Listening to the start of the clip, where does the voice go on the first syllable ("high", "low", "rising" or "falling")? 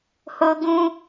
high